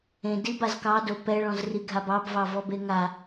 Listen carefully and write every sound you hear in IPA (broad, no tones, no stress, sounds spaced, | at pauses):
ẽ d i b a z k ɑ d o p ɛ ɭ ɔ̃ z r i ɡʱ a b ɑ b v ɑ v ɔ b e ŋ a